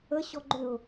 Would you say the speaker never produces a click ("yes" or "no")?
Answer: no